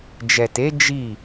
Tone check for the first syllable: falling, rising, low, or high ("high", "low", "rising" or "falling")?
low